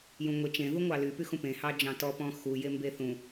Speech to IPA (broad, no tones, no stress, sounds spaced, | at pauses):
j ũ ŋʷ e t͡ʃ ẽ ð u ŋʷ ɑ l y p y x ũ p ẽ h ɑ d͡ʒ ɑ̃ t ɔ p ɔ̃ x u j e m b e θ ũ